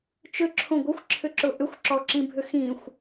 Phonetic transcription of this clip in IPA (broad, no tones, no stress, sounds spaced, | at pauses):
t͡ʃ ʏ ǁʰ õ ɡʷ ɪ xʷ ǁʰ ʏ ǁ ʊ ʔ ʏ xʷ ǁ ɔ ǁ ĩ bʱ ʏ x ĩ xʷ